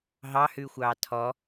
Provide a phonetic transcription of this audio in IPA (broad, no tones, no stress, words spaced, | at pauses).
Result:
ɦɑhʉxʷɑː tʰɔ